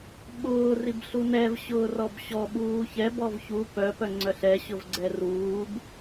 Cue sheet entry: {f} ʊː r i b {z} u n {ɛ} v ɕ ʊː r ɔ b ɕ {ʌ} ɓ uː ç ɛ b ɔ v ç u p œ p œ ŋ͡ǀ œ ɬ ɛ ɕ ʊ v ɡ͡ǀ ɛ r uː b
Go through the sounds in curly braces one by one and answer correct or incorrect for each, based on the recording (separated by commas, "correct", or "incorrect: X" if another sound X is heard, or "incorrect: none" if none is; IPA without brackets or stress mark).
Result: incorrect: ɓ, incorrect: ɬ, correct, incorrect: ɔ